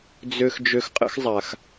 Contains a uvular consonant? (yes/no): yes